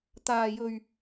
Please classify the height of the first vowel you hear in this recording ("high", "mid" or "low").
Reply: low